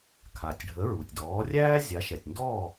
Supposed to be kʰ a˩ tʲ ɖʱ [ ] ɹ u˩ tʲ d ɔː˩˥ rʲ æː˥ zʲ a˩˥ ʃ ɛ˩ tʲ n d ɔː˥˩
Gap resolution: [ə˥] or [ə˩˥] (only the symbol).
ə˩˥